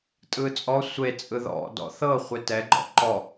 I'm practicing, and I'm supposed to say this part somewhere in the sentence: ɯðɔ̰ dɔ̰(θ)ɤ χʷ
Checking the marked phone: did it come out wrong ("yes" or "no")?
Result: no